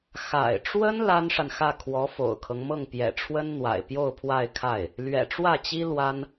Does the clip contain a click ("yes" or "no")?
no